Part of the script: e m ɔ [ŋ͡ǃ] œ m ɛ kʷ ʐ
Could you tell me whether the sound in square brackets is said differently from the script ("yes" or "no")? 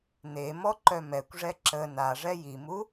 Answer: yes